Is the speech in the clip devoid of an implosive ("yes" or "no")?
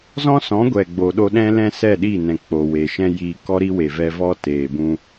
no